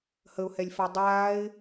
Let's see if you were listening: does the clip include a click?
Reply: no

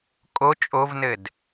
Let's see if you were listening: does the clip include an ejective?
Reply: yes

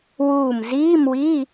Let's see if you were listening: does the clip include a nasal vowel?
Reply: no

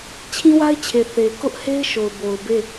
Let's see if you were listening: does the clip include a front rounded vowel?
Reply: no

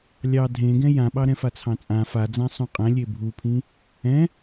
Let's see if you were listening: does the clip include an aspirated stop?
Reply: yes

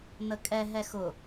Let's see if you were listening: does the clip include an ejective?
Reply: yes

